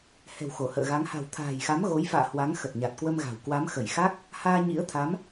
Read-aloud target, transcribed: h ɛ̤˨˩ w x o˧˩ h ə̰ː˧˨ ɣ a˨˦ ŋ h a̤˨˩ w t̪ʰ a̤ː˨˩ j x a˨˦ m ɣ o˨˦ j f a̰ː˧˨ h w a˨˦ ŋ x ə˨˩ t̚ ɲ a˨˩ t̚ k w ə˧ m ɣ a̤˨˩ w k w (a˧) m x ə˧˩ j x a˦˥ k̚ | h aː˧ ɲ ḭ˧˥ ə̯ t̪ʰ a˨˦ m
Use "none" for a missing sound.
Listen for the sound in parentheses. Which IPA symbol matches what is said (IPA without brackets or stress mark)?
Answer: a˨˦